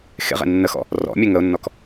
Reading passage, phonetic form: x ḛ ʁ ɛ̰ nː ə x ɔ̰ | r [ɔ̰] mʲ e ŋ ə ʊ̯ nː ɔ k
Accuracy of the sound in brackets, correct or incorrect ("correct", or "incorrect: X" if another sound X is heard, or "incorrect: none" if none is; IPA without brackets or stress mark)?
correct